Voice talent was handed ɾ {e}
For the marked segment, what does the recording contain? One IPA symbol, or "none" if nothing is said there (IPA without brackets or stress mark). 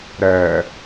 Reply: ɛ